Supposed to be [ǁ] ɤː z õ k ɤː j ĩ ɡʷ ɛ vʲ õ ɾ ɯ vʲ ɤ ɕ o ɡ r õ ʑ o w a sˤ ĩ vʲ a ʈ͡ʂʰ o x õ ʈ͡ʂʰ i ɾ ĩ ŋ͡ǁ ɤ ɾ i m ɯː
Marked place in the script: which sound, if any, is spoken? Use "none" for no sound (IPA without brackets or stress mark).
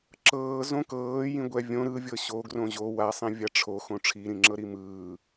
ǁ